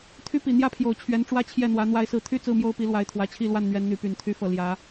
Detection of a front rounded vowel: present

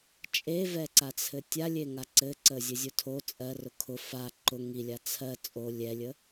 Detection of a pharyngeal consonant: absent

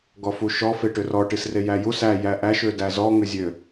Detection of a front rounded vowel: present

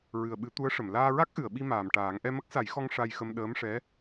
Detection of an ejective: absent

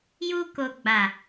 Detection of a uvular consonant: absent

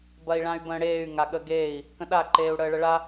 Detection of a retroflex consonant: present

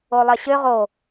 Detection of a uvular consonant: present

